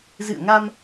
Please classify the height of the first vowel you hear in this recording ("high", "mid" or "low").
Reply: high